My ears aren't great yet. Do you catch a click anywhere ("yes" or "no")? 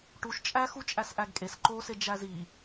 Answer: yes